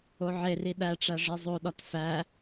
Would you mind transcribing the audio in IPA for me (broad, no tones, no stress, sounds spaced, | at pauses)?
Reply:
o ʕ e r i ɗ æ ʈ͡ʂ æ ʐ e zˤ o ɗ ɒ t f æ